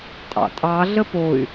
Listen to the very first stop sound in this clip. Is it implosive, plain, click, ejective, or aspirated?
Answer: ejective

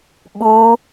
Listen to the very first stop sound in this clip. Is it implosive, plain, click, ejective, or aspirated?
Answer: implosive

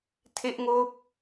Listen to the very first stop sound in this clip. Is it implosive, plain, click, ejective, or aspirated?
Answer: aspirated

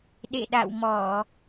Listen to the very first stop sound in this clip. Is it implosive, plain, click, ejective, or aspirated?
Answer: implosive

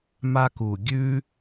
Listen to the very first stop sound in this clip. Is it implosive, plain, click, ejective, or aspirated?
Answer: plain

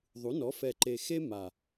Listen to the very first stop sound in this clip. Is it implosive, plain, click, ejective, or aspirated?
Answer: click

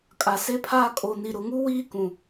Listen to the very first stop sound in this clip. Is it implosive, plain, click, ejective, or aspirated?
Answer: ejective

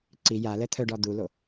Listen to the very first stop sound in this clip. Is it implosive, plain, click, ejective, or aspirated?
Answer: click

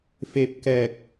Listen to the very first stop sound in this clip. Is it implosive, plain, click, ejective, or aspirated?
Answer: plain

